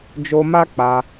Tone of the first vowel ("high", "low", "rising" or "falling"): high